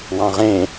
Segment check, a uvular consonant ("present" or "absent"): present